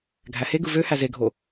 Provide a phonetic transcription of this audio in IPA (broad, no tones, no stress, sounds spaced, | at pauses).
ɡʱ æ h e ɡ ɯ v ø h æ z e ɡʱ o